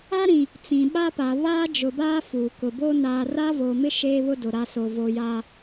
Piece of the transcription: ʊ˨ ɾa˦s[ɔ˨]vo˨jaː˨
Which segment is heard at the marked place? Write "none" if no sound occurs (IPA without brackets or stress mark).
o˨